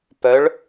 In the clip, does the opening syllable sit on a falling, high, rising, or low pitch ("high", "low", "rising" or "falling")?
rising